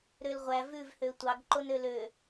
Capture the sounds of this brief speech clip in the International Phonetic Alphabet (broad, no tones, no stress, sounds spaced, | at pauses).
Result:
ɾ ø l ʁʷ æ v ʉ v h ø tʷ ɑ ɡ ǃ o n ø l ø